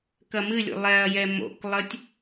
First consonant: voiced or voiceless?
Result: voiceless